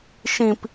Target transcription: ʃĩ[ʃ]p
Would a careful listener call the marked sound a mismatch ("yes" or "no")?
yes